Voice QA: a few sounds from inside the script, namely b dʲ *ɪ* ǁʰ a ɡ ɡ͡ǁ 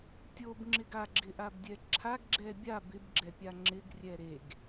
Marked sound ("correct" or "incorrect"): incorrect